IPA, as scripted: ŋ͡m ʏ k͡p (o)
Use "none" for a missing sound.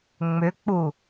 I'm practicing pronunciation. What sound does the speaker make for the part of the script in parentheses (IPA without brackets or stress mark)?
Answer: u